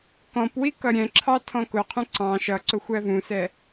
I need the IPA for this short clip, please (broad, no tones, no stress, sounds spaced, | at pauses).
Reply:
k ɔ̃ p w i k ʌ ɾʲ ɛ̃ ǁʰ ɑ tʰ ɔ̃ k ʊ qʰ ũ ǀ ɑ̃ ʃ ʌ ǀ ʊ xʷ æ v ũ s ɛ